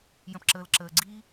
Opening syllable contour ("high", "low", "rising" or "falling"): low